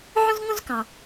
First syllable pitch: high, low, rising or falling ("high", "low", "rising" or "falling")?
high